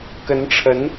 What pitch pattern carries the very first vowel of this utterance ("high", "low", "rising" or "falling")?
rising